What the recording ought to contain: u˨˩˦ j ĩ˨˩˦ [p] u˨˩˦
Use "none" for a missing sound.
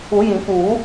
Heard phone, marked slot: p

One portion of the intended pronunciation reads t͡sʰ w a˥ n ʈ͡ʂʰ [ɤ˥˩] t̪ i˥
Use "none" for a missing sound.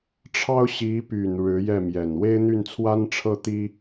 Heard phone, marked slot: ɤ˥˩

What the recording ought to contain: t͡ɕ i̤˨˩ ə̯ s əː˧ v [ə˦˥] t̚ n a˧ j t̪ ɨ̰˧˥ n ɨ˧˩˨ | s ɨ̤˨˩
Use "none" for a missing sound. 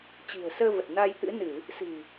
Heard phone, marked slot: ə˨˩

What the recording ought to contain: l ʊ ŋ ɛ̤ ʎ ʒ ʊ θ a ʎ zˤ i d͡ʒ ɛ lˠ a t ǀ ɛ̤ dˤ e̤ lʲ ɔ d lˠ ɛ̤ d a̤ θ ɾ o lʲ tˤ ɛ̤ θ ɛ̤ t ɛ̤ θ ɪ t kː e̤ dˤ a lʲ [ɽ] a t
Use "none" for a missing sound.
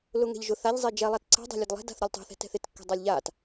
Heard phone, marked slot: ʎ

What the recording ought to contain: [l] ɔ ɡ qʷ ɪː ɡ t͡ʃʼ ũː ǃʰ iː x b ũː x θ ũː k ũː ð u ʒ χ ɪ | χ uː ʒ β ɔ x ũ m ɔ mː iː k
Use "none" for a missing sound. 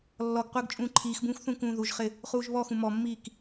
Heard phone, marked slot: lː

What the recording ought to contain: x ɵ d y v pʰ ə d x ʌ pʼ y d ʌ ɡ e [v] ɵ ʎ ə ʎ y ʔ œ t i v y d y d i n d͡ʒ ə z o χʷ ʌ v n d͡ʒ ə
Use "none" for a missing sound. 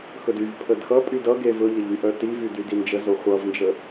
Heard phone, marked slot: v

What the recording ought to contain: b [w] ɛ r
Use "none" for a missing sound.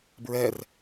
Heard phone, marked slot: ɹ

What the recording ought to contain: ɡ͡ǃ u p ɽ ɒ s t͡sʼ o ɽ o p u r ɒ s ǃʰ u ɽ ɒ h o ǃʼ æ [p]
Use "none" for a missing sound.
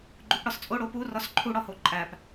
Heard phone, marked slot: p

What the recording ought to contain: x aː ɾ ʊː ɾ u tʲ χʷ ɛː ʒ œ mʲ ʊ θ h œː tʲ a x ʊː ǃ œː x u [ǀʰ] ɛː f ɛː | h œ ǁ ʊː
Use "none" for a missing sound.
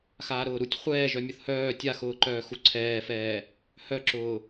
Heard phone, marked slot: ǀʰ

